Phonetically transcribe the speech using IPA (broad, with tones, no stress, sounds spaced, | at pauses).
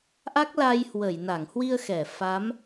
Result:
ʔ a˦˥ k̚ l a˧ j h w ə˧˩ j n a˧˩ ŋ h w i˧ ə̯ x ɛ˧˩ f a˨˦ m